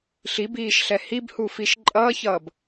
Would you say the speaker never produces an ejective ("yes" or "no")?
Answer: no